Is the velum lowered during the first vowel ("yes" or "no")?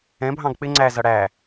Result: yes